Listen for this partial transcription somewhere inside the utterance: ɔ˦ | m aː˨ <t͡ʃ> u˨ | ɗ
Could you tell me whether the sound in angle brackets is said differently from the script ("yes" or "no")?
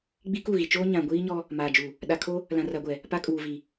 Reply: yes